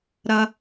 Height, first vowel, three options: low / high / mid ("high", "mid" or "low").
low